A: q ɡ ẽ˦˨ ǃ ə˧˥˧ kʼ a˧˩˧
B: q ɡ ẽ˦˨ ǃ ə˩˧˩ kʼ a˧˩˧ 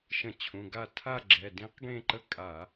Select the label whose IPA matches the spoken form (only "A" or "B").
A